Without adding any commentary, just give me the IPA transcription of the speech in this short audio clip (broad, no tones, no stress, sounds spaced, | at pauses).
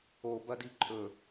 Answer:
o b ɐ d i ǃʼ ɵ